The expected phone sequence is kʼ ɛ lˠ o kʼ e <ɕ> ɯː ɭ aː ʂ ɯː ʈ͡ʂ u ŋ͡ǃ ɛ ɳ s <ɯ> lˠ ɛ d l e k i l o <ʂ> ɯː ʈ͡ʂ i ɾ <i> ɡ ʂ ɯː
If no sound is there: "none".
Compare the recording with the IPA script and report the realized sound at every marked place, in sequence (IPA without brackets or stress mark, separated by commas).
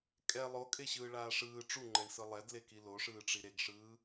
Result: ɕ, ɯ, ʂ, e